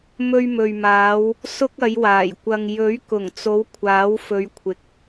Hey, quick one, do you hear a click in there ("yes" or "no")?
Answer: no